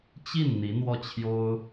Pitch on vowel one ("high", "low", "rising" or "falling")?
falling